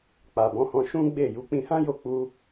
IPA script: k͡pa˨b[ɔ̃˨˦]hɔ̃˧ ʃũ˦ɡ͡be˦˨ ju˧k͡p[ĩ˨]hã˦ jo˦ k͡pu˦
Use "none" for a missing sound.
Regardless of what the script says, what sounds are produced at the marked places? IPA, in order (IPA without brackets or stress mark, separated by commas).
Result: ɔ̃˨˦, ĩ˧